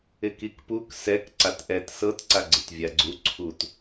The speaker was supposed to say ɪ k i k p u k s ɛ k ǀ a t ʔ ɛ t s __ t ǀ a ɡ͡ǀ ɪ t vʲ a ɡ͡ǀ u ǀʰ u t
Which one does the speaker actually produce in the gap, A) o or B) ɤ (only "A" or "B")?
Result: B